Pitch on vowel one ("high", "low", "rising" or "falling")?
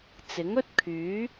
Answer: rising